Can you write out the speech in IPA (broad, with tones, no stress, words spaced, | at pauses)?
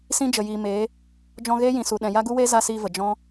sĩ˦d͡ʒə˨jiː˨meː˨˦ | d͡ʒɔ̃˧ɣeː˦jĩ˨ su˨ɗɛ̃˨ ja˦ɡu˦weː˦ za˦siː˧və˨ d͡ʒɔ̃˦